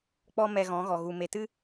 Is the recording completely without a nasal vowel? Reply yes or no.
no